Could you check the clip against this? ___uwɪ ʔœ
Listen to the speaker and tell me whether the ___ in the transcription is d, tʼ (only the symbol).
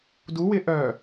d